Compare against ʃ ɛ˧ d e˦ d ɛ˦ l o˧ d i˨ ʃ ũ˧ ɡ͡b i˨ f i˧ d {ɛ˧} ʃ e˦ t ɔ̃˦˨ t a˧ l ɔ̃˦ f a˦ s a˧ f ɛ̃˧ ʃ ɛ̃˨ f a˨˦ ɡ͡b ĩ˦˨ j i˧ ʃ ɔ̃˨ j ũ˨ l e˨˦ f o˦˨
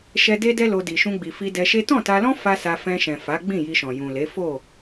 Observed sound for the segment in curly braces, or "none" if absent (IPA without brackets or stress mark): ɛ˧